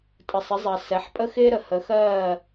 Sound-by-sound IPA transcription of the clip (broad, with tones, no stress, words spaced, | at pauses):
tʼə˨sˤɪ˨˦zˤɜ˨ sɛ˨˦ħpʼə˦xɪː˦ ɾə˨hə˨˦xɜː˦˨